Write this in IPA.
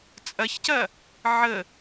t͡sʼ ɐ ç c ɐ | ʕ ə

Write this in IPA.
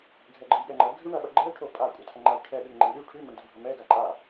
ɡʱ ɛ ɡ͡ǃ ɐ j ɠ ɛ ŋ͡ǃ ɐ ɡʱ ʉ ɳ ɐ ɓ ɐ ɡ͡ǃ ɛ ʈʰ o pʼ a kʷʼ ɐ tʰ ɐ ŋ͡ǃ a j ʈʰ ɛ ɗ ʉ ŋ ŋ͡ǃ ɛ ɳ ɗ ʉ ʈʰ ʉ m ə ɳ d ə bʱ ə m ɛ ɡ a ǃʼ a

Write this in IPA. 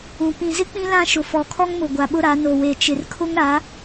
ũ˨ p ĩ˨ z ɪ˦ k͡p ĩ˦ l ã˦ ʃ ʊ˨ f ɔ˨ kʰ ɔ˦ ŋ m ʊ˨ ɡʷ a˨ ɓ ʊ˦ ɾ a˨˦ n o˨ w e˨ t͡ʃ ɪ˨ r kʰ ʊ˦ ŋ ɾ a˨˦

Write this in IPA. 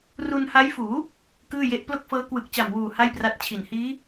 r u˧ n h a˦˥ j f uː˩˦ | k ɯː˥˩ j e˦˥ ʔ p l o˥˩ k̚ f ɤː˦˥ k w ɯ˨˩ k̚ t͡ɕ a˨˩ m w uː˨˩ h a˥˩ j p r a˦˥ t̚ t͡ɕʰ i˨˩ n h iː˦˥

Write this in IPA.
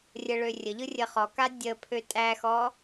rʲ ə ɭ ø rʲ ə ʎ ɯ rʲ ə χ ɔ k a dʲ ə pʰ ø tʼ æ x ɔ

